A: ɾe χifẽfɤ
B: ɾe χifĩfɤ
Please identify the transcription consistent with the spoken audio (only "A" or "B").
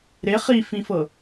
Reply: B